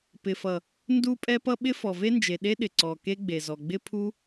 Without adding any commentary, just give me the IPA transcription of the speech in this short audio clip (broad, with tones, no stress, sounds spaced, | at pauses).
p ɪ˨ f ʌ˨ | n d u˦ pʼ ɛ˦ p ʌ˦ ɓ ɪ˦ f ɔ˨ v e˦ n d͡ʒ e˨ ɗ e˦ ɗ ɪ˨ ǀ ɔ˨ k e˦ ɡ͡b e˨ z ɔ˨ ɡ͡b ɪ˦ pʰ u˦